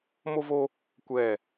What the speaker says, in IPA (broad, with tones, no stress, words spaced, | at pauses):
mo˦vo˦ | kʷɛ˦˨